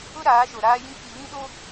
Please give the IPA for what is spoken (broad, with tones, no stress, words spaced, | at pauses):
ʊ˦ɾaː˨˦ʃo˨ ɾaː˦jĩ˦ k͡pi˨βĩ˦ɗo˦